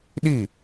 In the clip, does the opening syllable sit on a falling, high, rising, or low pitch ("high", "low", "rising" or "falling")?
falling